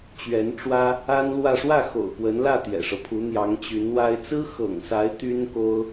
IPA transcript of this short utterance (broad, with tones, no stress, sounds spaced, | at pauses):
t͡ɕ ɥ ɛ˧˥ n ʈ͡ʂ w ä˥ | a˥ n l w ä˥˧ ʂ w ä˥˩ x o̰˨˩ ʊ̯ p w ə˧˥ n l ä˥˩ t̪ j ɛ̰˨˩ ʂ ɤ˦ pʰ u˧˥ n̪ j ɑ˧˥ ŋ t͡ɕ y˧˥ n w a˥ ɪ̯ t͡s ɹ̩˥ x ɤ̰˨˩ ŋ s a˧˥ ɪ̯ t̪ y˥ n k o˥ ʊ̯